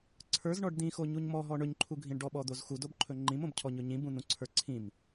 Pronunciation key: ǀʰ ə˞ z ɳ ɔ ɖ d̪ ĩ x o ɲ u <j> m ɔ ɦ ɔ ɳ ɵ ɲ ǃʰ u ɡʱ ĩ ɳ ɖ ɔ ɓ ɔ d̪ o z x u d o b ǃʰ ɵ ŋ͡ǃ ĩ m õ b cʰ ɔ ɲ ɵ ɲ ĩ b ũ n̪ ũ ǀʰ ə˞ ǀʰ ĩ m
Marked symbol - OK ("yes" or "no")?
no